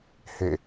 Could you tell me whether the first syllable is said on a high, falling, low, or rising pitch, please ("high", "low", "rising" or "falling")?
falling